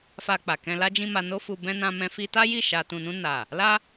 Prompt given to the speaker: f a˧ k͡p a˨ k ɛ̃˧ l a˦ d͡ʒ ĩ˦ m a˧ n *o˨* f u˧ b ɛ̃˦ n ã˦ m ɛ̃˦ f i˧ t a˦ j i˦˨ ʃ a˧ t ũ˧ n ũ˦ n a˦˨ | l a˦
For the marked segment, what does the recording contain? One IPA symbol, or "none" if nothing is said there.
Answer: o˦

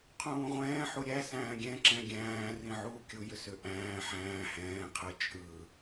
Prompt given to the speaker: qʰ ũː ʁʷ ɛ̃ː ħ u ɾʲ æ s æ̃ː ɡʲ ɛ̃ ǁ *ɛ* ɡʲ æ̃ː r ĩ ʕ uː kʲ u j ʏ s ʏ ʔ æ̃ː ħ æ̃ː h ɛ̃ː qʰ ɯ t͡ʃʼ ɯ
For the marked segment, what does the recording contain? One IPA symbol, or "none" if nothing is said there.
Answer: ɛ̃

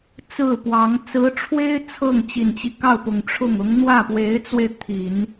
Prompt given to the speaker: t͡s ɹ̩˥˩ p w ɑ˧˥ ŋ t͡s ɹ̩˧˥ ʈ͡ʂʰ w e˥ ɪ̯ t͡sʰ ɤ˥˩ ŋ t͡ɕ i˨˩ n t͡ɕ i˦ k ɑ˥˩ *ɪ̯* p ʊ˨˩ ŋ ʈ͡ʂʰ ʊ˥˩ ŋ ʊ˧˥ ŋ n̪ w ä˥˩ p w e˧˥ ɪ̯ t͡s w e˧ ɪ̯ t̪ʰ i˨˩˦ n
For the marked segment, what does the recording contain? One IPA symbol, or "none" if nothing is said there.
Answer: ʊ̯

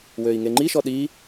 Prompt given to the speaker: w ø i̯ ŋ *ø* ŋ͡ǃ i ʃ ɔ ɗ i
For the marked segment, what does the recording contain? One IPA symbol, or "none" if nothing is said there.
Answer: e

